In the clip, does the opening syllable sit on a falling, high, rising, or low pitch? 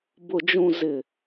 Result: low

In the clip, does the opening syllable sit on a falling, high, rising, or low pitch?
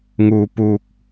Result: low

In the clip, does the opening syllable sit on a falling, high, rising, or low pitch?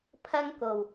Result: high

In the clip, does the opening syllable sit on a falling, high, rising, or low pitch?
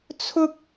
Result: high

